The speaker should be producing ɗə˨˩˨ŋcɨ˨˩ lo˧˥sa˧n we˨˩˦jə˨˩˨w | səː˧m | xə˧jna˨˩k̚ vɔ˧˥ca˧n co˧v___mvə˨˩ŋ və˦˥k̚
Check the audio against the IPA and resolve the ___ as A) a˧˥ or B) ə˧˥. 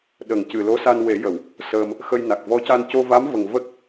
A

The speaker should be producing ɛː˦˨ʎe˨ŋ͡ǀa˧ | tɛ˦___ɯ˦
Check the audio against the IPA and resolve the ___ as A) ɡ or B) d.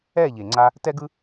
A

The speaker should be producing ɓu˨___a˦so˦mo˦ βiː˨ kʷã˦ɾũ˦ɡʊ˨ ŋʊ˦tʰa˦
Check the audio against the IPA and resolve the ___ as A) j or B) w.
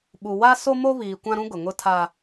B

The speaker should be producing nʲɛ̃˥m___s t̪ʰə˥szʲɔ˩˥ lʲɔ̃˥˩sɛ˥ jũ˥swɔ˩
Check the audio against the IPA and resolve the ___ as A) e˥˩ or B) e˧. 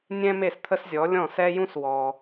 A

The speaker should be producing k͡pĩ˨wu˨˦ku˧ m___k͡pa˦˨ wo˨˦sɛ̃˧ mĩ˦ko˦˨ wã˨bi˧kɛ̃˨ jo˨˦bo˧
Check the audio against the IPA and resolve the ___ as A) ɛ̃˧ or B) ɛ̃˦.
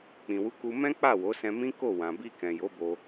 B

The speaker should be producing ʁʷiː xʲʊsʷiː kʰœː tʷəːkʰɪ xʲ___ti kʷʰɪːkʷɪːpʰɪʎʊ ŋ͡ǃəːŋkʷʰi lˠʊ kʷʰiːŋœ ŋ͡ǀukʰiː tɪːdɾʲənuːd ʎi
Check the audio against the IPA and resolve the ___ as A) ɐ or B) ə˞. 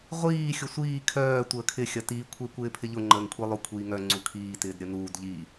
A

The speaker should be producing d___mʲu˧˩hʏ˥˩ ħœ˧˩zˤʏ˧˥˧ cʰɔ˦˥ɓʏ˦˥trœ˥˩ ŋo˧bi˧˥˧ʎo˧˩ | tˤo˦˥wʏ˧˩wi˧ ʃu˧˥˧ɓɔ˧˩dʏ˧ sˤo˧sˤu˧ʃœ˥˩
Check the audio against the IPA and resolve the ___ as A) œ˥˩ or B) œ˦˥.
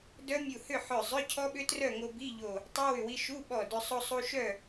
B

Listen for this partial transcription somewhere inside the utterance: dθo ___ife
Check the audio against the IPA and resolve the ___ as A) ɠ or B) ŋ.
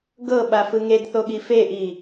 A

